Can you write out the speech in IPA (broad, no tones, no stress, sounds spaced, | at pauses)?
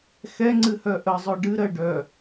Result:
x ɛ ŋ͡ǀ ɨ h œ ʔ ə zˤ œ ɖ ɨ ɾ ɜ ɖ œ